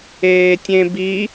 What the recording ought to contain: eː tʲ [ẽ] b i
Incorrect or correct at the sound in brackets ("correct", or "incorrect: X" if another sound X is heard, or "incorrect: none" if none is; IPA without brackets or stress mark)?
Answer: correct